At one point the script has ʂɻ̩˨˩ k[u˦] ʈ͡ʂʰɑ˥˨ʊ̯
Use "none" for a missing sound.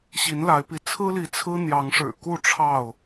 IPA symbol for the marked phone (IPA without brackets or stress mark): u˥˨